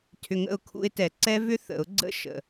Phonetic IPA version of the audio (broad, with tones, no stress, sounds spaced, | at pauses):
tʰ ʏ˧ ŋ ə̰˥˨ ʊ̯ kʰ ṵ˧ ɪ̯ t ɛ˨˩˦ ǀ ɛ˦˥ v ʏ˦˥ θ ə̰˨˩˦ ʊ̯ ɡ͡ǀ ə̰˦˥ ʃ ə̰˨˩